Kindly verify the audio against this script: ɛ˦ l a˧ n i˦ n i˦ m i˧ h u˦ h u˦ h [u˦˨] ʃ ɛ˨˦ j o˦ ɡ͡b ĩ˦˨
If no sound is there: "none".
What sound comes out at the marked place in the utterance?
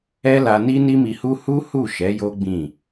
u˦˨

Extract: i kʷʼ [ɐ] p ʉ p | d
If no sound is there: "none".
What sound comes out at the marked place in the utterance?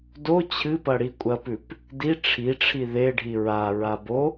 ɐ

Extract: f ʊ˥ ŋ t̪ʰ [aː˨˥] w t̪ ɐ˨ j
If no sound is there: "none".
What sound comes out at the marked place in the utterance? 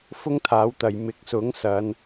aː˨˥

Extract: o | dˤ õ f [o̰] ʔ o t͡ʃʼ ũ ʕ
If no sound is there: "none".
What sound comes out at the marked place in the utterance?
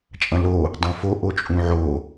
o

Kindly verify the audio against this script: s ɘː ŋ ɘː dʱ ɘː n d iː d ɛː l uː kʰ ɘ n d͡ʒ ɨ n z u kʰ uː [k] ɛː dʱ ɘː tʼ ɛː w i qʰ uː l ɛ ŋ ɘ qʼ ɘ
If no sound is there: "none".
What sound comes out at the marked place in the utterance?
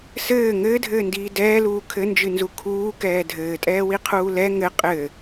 k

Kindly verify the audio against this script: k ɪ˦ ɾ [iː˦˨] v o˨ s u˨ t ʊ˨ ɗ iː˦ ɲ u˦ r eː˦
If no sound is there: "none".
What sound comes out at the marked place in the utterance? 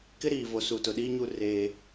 iː˨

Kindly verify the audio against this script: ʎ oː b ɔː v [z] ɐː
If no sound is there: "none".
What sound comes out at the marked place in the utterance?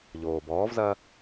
z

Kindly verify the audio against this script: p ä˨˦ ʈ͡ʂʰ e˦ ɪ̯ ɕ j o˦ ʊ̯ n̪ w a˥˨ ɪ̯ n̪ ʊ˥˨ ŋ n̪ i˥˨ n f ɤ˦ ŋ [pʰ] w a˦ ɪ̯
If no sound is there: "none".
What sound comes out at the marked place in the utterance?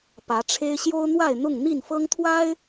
t̪ʰ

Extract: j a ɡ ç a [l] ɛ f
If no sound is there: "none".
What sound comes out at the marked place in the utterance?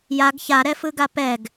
ɾ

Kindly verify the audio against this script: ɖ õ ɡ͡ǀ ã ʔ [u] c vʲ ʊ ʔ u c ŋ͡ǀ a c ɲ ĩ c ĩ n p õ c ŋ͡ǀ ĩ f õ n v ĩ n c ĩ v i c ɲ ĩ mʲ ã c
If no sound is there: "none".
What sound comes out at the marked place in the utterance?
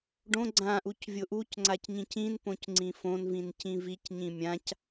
u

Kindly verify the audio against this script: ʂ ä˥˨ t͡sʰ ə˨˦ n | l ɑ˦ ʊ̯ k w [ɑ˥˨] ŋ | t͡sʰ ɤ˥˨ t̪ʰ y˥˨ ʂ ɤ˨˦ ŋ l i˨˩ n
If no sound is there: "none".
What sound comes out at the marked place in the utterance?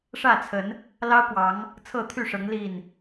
ɑ˨˦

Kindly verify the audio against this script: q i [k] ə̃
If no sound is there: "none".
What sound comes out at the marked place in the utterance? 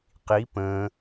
p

